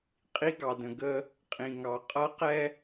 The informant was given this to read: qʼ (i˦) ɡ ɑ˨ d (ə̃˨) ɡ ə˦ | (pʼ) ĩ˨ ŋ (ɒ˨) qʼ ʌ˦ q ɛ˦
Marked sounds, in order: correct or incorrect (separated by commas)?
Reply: correct, correct, incorrect, incorrect